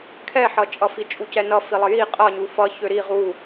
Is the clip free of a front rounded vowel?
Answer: no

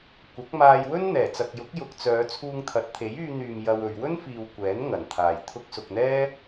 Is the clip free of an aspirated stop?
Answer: no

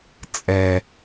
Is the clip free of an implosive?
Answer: yes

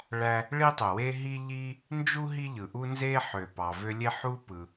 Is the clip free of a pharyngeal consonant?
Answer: no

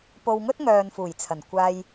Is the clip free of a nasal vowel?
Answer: yes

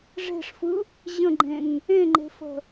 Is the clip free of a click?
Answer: no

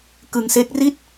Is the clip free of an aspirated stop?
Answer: yes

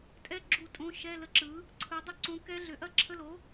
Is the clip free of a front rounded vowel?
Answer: no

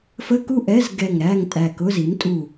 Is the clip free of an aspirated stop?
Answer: yes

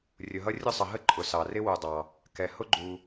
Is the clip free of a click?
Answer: no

